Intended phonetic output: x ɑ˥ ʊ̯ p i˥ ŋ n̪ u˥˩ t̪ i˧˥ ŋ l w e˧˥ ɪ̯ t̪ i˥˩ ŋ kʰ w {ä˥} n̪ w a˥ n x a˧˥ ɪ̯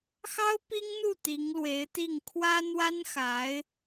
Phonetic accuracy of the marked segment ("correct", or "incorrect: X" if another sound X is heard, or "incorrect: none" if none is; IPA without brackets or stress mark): correct